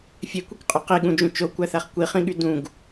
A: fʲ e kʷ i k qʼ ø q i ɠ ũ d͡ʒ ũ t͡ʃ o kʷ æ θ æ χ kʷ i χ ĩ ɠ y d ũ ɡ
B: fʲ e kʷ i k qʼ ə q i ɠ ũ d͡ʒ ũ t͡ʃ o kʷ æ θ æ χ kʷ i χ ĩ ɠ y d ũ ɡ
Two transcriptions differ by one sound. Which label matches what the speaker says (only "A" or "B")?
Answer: A